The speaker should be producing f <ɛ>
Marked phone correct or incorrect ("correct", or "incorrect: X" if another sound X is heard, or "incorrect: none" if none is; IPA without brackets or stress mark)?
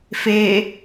incorrect: e